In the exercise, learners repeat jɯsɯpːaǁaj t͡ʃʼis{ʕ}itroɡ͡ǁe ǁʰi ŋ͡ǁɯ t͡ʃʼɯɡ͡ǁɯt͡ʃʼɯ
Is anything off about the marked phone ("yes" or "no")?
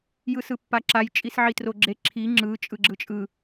no